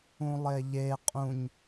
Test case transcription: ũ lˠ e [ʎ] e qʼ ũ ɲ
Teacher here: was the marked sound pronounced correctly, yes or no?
yes